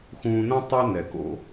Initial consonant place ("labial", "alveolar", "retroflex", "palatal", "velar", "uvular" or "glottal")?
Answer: velar